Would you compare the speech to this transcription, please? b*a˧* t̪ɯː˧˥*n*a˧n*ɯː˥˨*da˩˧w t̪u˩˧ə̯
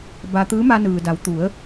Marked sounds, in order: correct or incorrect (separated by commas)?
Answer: correct, incorrect, incorrect